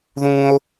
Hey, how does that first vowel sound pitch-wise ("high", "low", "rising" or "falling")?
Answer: high